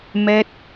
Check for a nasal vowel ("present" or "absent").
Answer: absent